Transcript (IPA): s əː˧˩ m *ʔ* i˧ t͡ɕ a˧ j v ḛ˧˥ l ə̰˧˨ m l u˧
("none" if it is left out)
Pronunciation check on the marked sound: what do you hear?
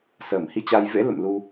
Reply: h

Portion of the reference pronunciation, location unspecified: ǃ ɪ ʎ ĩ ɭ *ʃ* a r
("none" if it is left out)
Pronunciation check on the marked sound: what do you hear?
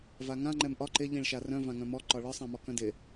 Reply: ʃ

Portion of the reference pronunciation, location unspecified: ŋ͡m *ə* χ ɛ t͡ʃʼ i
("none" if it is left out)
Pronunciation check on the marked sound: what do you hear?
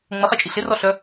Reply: ə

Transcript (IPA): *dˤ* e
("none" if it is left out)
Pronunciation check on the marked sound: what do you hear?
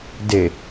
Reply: d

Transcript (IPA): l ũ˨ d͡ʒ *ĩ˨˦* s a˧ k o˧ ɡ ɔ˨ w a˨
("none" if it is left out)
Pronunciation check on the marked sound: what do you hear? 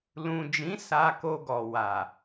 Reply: ĩ˨˦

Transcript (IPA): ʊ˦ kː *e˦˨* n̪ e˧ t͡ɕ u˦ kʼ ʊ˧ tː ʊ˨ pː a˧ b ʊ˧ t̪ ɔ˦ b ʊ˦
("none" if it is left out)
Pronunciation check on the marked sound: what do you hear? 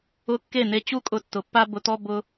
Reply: e˦˨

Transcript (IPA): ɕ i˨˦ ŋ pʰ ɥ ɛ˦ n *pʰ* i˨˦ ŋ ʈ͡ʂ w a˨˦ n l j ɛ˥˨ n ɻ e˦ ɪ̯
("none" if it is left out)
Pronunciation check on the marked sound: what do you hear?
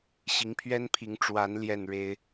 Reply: pʰ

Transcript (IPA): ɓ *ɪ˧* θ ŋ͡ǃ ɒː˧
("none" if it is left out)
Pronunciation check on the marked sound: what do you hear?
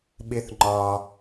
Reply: ɪ˧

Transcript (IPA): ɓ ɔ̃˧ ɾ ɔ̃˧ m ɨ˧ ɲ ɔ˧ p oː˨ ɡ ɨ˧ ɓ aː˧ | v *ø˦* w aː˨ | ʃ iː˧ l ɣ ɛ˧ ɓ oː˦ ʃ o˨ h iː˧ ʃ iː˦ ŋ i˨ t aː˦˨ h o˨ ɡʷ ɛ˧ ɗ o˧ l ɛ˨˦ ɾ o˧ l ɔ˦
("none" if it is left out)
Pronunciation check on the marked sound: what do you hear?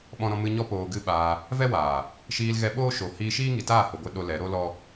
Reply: ɛ˦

